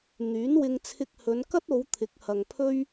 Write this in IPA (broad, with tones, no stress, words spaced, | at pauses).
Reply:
n̪yː˨˥nwɪ˧ŋ t͡sʰɪ˧k̚hɵ˨˧nkɐ˥t̚o˨˧w t̪ʰɪ˨˥k̚hɐ˨ŋpʰɵ˥ɥ